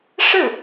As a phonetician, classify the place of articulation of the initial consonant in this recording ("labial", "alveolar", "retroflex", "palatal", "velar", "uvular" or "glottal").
retroflex